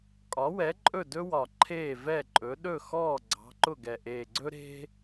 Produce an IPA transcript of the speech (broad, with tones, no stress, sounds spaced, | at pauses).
kʼ ɒ˨˥ w ɛ˨˥ ǃʼ ɵ˥˨ d ɵ˥ w ɒ˨˩ ǃʰ eː˥˨ v ɛ˥˨ ǃʼ ɵ˨˥ ɗ ɵ˥˨ x ɔː˥˨ ɡ͡ǀ ɑ̤˨˥ ǃ ʊ˥˨ ɡ ɛ˨˩ ʔ eː˨˩ ɡ͡ǀ ɵ˥ ɾ e̤˥